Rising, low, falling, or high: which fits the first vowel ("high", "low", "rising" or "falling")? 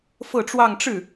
falling